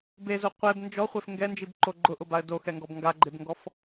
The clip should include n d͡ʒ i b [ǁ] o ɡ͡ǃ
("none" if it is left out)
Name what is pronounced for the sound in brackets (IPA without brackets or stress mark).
ǃ